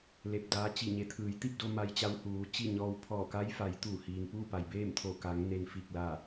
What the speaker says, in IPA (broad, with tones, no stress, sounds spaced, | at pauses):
l e˧˩ p̚ d aː˧˥ t͡ɕ i˧˩ ɲ e˩˧ t̪ʰ ɯː˩˧ j t̪ i˥˨ p̚ d o˧ m a˧ j t͡ɕ a˧˥ w h uː˩˧ t͡ɕ i˥˨ ɲ ɔː˧ w pʰ ɔː˧˩ k a˧˥ j f a˩˧ j t̪ uː˧˩ h iː˩ ŋ p uː˥˨ p a˩ j b eː˥˨ m t̪ʰ o˧˩ k a˩˧ ŋ n e˧ n f i˧˩ k̚ l a˧˩